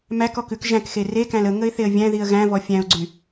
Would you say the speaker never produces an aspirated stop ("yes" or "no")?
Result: yes